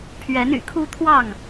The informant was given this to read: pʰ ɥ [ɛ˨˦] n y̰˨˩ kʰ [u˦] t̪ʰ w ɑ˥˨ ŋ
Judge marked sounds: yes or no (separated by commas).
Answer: yes, yes